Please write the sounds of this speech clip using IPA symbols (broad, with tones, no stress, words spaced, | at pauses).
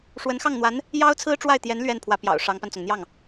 ʂwə˧˥nxɑ˥˩ŋn̪wa˧˥n | jɑ˥ʊ̯t͡sʰɹ̩˥ʈ͡ʂwa˥˩ɪ̯t̪jɛ˧˥n lɥɛ˥˩n pʰwä˧˥pjɑ̰˨˩ʊ̯ ʂɑ˧˥ŋpa˧nt͡sʊ˩ŋ n̪jɑ˥˩ŋ